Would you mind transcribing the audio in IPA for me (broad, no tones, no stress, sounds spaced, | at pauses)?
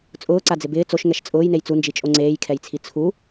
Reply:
t͡sʼ ʊː ǀ a d͡z ɪ b ɪː t͡s o ʃ ŋ ɛ ʃ t͡sʼ ʊː j n e j t͡s u n d͡ʒ i t͡ʃʼ o ŋ͡ǀ eː j kʰ ɛ j t͡sʰ i t͡sʰ u